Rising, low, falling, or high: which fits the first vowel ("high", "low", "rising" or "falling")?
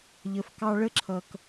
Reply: low